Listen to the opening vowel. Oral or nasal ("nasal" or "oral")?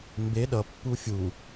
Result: oral